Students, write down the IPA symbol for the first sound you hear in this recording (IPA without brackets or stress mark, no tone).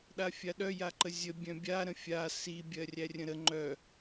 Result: ɗ